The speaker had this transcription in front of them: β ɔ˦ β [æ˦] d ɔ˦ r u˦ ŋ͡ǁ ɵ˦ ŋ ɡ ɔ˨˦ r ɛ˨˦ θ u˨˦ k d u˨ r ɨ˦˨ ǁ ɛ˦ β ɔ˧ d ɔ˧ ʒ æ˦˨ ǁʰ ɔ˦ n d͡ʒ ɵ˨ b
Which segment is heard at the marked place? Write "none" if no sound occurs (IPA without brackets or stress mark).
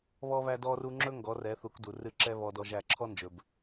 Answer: æ˦